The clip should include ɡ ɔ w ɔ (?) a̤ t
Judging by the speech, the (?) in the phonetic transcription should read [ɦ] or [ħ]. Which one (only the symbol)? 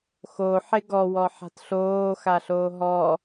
ħ